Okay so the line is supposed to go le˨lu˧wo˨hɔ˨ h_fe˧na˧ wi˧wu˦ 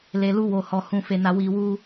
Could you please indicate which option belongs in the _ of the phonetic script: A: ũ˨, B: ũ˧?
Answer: B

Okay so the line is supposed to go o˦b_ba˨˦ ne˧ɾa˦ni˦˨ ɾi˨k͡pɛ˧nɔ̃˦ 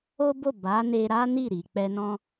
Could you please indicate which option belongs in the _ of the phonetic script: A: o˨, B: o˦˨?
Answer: B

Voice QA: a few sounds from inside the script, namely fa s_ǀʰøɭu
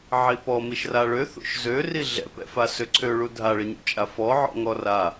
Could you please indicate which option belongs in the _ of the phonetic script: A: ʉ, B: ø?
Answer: B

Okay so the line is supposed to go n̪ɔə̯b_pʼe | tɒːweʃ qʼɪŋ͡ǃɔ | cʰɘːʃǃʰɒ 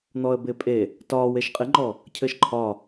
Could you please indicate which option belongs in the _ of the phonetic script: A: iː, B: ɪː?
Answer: B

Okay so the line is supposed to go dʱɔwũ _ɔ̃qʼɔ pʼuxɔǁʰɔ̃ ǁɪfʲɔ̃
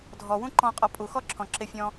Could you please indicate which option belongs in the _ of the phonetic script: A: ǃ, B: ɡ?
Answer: A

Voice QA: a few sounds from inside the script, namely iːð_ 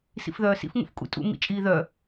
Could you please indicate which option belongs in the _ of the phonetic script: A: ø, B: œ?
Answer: B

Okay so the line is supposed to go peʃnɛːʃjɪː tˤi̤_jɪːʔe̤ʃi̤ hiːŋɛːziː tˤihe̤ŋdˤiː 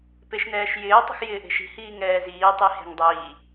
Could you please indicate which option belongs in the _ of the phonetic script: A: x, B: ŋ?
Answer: A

